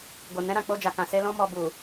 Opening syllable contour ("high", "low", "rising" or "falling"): low